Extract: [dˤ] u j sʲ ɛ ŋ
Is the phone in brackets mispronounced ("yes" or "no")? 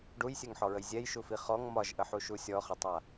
yes